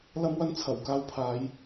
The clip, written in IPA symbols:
l ɐ˥ m w ɐ˥ n t͡sʰ ɐ˨˩ w k aː˧ w pʰ aː˨˧ j

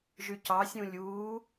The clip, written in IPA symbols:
ʒ y c ɑ sʲ ũ lʲ uː

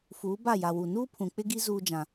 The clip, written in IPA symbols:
f uː˨˦ b a˦˨ j a˨ w u˨ n uː˦ pʰ ũ˨ k͡p ɪ˦ ɡ i˦ z uː˦ d͡ʒ ã˦

